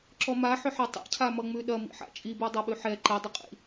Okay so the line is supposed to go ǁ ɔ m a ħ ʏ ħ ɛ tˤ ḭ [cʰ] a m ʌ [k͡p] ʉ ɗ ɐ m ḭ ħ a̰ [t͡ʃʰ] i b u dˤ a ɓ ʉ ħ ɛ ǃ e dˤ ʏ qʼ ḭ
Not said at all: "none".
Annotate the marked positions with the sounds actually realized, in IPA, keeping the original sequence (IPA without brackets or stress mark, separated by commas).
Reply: cʰ, ŋ͡m, t͡ʃʼ